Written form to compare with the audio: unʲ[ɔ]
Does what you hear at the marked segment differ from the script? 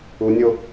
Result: yes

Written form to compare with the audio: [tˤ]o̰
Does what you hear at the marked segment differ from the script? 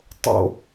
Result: no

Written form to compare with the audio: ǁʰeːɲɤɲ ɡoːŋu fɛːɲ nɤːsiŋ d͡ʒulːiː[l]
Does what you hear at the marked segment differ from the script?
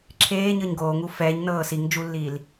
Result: no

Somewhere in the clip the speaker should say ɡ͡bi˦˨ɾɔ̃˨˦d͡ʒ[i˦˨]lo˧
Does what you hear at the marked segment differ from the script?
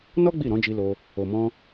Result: yes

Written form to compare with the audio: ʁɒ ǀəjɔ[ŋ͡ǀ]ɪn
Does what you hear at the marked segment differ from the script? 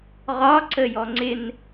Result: no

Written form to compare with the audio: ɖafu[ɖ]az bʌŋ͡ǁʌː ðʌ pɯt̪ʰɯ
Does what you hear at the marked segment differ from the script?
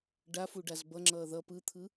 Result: no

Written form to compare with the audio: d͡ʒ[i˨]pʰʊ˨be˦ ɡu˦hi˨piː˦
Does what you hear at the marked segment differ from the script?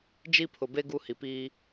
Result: yes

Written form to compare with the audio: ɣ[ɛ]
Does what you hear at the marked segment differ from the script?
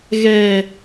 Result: no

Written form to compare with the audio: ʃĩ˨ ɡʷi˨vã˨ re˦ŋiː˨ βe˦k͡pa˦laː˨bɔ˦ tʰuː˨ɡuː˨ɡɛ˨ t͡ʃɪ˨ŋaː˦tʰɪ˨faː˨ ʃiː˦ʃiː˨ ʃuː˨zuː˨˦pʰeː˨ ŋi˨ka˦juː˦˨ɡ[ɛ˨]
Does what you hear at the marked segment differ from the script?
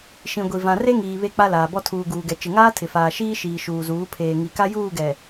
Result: no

